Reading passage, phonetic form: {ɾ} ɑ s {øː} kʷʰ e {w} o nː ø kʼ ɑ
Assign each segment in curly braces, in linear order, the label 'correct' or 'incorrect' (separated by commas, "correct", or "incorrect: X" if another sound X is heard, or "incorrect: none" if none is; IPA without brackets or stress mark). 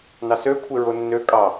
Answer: incorrect: n, incorrect: ø, incorrect: ɹ